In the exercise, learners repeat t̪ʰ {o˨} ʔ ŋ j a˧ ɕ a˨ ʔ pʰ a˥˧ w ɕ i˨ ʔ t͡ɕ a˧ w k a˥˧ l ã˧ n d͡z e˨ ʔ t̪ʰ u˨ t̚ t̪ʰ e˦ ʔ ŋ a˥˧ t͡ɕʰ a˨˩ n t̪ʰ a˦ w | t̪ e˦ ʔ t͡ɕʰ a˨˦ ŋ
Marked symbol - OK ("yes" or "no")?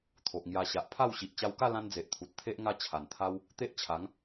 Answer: yes